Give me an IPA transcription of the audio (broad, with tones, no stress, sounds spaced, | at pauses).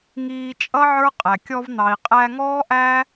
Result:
ŋ iː˧ t͡ʃʼ ʌ˦ ʕ ə˞˦ qʼ æ˨ kʲ ɔ˧ v n̪ ɑ˨ i̯ qʼ æ˧ ŋ ɔː˦ ʔ æ˦